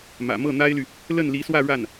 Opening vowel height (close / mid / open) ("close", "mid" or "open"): open